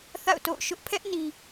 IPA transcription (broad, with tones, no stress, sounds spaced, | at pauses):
θ a̰˦˨ ʊ̯ t o̰˦˨ ʊ̯ ʃ ʊ˦ ʔ pʰ ɛ˦ ʔ n i˨